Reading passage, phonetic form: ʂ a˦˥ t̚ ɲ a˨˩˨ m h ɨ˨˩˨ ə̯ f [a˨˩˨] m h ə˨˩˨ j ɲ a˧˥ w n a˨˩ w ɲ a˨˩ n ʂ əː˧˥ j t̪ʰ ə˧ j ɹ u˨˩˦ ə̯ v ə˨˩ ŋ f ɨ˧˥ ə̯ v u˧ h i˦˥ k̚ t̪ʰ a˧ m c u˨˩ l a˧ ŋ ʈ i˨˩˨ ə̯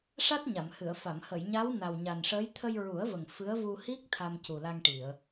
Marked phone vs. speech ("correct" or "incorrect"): correct